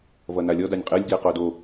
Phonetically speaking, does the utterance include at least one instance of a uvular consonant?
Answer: yes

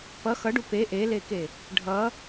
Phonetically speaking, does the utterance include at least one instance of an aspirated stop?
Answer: no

